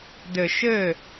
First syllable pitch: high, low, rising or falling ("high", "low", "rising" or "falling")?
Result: low